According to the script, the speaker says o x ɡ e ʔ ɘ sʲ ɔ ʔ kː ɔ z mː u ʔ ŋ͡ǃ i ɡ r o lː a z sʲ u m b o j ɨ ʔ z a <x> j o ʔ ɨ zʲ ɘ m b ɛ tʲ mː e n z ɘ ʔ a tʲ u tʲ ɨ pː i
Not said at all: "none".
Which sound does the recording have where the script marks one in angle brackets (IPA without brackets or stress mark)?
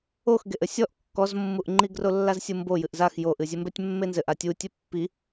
x